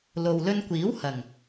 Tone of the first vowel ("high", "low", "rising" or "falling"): low